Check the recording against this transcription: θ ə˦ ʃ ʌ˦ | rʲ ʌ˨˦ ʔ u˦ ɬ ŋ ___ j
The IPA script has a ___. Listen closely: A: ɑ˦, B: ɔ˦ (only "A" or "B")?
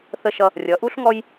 B